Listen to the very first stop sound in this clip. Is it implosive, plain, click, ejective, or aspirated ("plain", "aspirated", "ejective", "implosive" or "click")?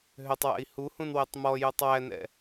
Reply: plain